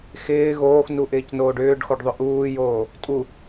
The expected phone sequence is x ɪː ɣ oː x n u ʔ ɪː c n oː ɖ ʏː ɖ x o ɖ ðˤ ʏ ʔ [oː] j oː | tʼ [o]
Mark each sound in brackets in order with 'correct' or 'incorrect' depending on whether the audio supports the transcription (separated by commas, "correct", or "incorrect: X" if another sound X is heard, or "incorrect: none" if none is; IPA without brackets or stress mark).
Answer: incorrect: uː, incorrect: u